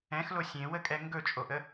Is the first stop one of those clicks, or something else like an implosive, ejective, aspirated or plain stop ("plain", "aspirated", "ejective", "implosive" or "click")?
ejective